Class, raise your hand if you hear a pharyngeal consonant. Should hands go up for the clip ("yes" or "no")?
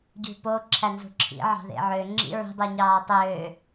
yes